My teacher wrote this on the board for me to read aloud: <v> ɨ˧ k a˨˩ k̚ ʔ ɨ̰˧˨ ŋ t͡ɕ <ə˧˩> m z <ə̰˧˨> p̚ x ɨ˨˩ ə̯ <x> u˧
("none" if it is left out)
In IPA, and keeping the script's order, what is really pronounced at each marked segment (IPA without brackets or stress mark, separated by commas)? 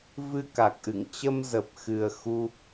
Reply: v, ə˧, ə˨˩, x